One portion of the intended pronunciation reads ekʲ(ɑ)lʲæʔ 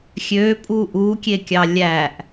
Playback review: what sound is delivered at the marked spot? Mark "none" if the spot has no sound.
ɑ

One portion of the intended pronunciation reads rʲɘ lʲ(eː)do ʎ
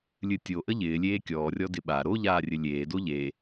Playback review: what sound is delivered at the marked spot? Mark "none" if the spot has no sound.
eː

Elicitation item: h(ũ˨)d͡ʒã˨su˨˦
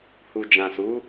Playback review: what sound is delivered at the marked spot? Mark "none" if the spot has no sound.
u˨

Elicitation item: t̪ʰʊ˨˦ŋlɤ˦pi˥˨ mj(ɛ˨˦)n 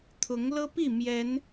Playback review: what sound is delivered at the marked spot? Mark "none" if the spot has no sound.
ɛ˨˦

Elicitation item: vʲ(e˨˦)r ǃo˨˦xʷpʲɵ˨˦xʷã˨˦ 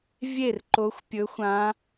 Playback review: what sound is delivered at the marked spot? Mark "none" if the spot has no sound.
e˥˩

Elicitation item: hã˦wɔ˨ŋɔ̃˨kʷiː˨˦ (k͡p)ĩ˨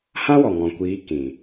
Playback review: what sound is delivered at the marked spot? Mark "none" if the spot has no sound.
k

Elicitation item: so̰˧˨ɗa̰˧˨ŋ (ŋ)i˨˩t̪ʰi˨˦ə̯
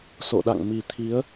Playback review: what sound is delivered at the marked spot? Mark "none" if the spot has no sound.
m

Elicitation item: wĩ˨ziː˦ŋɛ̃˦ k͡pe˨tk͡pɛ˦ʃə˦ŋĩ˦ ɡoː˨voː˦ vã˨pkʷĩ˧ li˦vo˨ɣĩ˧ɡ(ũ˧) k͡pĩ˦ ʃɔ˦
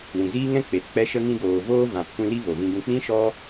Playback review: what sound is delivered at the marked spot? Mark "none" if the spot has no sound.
ũ˧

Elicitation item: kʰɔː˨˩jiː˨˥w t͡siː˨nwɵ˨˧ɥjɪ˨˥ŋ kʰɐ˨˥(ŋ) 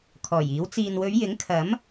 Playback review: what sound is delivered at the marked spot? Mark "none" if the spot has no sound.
m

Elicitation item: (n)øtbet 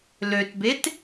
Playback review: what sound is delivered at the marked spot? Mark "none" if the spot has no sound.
l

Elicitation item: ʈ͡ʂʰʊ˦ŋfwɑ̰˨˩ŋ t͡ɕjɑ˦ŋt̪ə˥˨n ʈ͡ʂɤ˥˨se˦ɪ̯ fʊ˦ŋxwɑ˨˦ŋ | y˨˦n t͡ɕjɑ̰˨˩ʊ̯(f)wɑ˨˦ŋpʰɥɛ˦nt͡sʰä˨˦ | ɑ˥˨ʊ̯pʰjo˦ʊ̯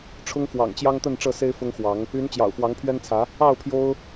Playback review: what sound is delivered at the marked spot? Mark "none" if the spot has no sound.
f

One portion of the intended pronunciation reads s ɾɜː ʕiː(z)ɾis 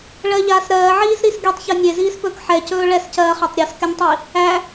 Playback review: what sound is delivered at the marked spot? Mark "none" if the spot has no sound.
z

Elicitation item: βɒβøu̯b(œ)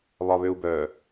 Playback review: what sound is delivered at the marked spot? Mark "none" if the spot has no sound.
œ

